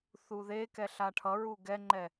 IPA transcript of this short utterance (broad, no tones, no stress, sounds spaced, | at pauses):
θ u ð e k ɛ ɬ a ʈʰ ʌ ɹ u ɡ ɛ ŋ͡ǃ ɛ